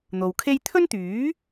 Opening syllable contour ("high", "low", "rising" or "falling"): low